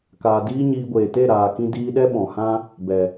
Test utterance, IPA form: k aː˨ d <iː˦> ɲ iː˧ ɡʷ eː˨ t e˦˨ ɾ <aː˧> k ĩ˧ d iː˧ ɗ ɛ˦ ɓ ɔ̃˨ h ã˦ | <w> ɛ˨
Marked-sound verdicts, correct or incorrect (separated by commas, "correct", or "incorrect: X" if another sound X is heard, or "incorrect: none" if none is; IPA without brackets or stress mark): correct, incorrect: aː˨, incorrect: b